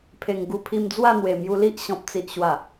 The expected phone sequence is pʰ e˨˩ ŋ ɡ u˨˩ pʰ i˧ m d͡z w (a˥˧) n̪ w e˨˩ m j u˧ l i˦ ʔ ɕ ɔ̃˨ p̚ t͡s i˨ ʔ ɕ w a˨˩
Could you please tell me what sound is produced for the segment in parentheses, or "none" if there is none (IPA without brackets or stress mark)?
a˥˧